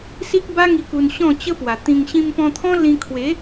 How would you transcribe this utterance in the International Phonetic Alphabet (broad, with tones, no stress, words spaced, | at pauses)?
si˦k̚ba˦ŋi˧ ku˧nɕɔ̃˥˧ t͡ɕə˦pwa˨˩t̪ĩ˧ŋ ɕĩ˧mpɔ̃˧t̪ʰɔ̃˦ lĩ˧kʰwe˨˦